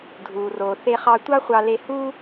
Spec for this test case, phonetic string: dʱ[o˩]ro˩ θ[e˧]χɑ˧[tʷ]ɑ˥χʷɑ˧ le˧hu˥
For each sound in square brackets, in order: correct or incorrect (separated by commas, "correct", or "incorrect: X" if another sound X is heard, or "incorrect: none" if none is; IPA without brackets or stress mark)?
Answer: incorrect: u˩, correct, correct